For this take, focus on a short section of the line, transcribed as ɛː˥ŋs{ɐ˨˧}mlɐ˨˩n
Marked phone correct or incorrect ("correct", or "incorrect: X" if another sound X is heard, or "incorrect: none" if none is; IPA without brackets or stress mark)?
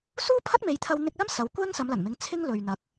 correct